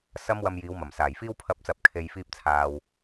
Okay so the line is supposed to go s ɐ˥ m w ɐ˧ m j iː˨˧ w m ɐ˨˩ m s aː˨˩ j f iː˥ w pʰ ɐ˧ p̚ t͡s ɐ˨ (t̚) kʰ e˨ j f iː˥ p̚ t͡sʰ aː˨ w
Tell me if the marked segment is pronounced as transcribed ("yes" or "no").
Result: no